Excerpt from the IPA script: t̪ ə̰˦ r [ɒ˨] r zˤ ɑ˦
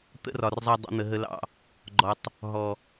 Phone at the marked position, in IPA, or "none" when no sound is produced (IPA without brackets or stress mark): ɒ˨